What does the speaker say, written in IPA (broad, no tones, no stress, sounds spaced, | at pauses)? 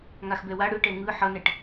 ŋ a x b ɛ w a ɽ ɯ ʈ ɛ ŋ ɯ ħ ʌ n ɛ ʈ